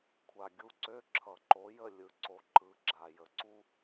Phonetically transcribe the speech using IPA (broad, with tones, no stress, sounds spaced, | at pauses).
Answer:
kʷʰ a˨ ɡʲ u˧˥˧ ǀ ø˧˥˧ ǁʰ ʌ˨˩˦ ǃ o˨˥ j ə˥˨ lʲ ɯ˨˥ ǀ o˨ ǃ ɯ˨˥ ɡ͡ǁ a˨ j ə˨ ǀ u˥